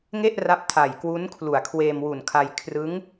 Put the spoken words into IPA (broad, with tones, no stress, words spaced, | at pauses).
ŋe˥˩ʔra˦˥p̚ tʰa˨˩jkwu˦˥n kʰlu˨˩a̯kʰweː˧mwu˨˩nkʰa˧j kʰrɯ˦˥ŋ